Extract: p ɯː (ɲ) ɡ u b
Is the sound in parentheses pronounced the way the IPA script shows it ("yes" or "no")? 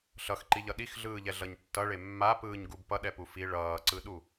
yes